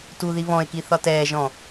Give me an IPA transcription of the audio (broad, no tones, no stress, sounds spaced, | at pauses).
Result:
t u ð i β ɔ̃ e̯ k i θ ɒ t ɛː ʒ ɔ̃